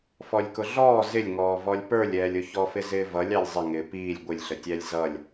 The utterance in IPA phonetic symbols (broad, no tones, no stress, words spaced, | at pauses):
fɔlʲkʊɮɔː zɪlʲŋɔː vɔlʲpə˞lʲɛːlʲʊ çɔfɪzɪːvʌlʲ ɑlʲzˤɪ ŋɪːpiːlʲ ɡʷɪlʲɬətʲælʲ zʌlʲ